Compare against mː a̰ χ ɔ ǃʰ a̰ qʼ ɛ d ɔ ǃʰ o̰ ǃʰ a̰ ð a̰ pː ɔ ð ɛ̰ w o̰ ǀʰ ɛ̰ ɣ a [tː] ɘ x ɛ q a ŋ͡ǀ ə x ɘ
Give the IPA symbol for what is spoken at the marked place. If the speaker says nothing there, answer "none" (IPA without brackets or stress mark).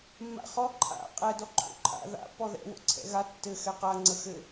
tː